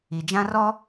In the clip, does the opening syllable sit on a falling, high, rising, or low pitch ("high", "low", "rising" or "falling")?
low